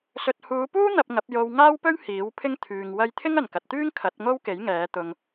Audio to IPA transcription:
sɵ˨t̚huː˨˧puː˥ n̪ɐ˧p̚ŋɐ˨˥p̚ jo˧wŋaː˥wpɵ˥ɥ hiː˨˥wpʰɪ˥ŋ t̪ʰyː˨ŋ wɐ˧jt̪ʰɪ˥ŋ ɐ˨nkɐ˨t̚t̪yː˥ŋ kʰɐ˨˥t̚ŋo˥wke˨˥j ŋɛː˨˧ t̪ʊ˨ŋ

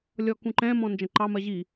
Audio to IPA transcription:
lʲɔkũǃɛ̃mɔ̃ nd͡ʒə̃ǃɑmɜ ʑi

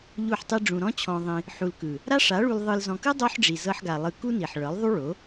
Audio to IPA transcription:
ʎu˦˨ħtˤi˦ɖ͡ʐũ˧ ɾɔ̃˦t͡ɕʰɔ̃˧ðˤĩ˧ | ħu˨lkɯ˨ | ɾa˦ʂa˨˦ɭu˧l ðˤɯ˧l zɔ̃˨kɯ˦ dˤo˦ħɖ͡ʐi˨ zɤ˧ħɡa˨ lˠɯ˧ku˦ni˨ħ ɭɤ˨˦lˠðˤu˦ɭo˨˦

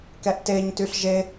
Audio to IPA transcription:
kɛʔteɲtyɬ ʒe

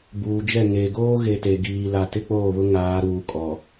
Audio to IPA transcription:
buː˨d͡ʒɛ˦˨ ŋe˨ ɡoː˦ɣe˨ te˨ɡiː˨la˨ tɪ˦k͡poː˦˨βʊ˦ ŋaː˨˦ɾuː˨kʼɔ˨

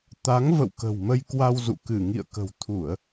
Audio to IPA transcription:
t̪a˨˦ŋvə̰˧˨wkə̤˨˩wmə˧j kwa˧wzṵ˧˨ kɨ˧˩ŋḭ˧˨ə̯kə̤˨˩w t̪ʰu˧˩˨ə̯

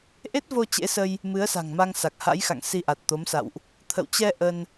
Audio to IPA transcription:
ʔe˦˥t̚vo˧ t͡ɕḛ˧˥sə˧j | mɨ˨˦ə̯sa̤˨˩ŋma˧ŋ sa˨˩k̚ha̰˧˥jxa̰˧˨ŋ si˧ʔa˨˩t̚t̪o˨˦msa̰˧˨wʔ | t̪ʰə̰˧˨wt͡ɕɛ˧ ʔə˧n

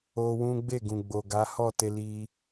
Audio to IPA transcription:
o˧wũ˦ ɡ͡be˦˨ɡũ˨ɡ͡bo˨ ɡa˨˦hɔ˦˨te˧li˧

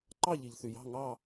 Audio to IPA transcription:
ǃɑ˥˨ʎi˩ʎθy˩jɑ̤˥˨ ŋɑ˥˨

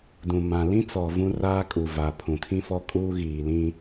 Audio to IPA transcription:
dũ˨ mã˨lĩ˦t͡sɔ˨ vũ˦raː˦kʼu˨ va˨pʰũ˨tʰĩ˦fɔ˦ kʼuː˦ɣiː˨lĩ˦

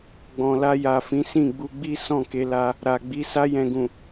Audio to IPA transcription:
ɡ͡bɔ̃˨la˧ja˨fĩ˨˦ sĩ˦˨ɡ͡bu˧ɡ͡bi˦ sɔ̃˦˨ke˧la˧ | ɾa˨ɡ͡bi˨˦ sa˧jɛ̃˨ɡũ˨

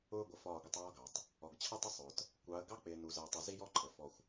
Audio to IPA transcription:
ʊː˦ɡʷə˨fɒː˦˨ɡʷə˦tˤ ɒː˦ɡɑ˨tˤ | ɔ˨ɡt͡ɕʰʌ˦tˤɪ˦sˤʊː˨t | kʷɑ˨˦ə̯ ɡɑ˦k͡pɪː˨ nu˨zɜ˨tˤʊ˨ zi˦jɔ˦ǃʰə˨ fɔ˦xʷ

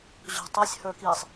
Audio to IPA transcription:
ʑo̤tˤəsʲ hə˞kisˤ

